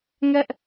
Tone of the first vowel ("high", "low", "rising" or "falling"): high